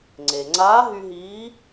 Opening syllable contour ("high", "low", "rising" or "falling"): low